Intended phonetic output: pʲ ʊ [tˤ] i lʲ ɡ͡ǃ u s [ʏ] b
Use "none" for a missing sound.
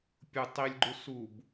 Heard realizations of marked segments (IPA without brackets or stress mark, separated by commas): tˤ, u